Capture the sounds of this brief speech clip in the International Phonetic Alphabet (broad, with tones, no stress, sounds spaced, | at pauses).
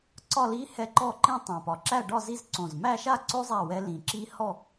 ǀ ɒ˥˧ l i˦˥ h ɛ˦˥ ǃ ɔ˥˧ ǃ ĩ˥˧ tˤ õ˨˩ p ɒ˨˩ ǁ æ˥˧ ɖ ɒ˥˧ z i˥˧ z ǀ õ˨˩ z m æ˥˧ ʃ a˥˧ ǀ o˦˥ zˤ æ˥˧ w ɛ˦˥ l ĩ˨˩ ǁ i˦˥ h ɔ˥˧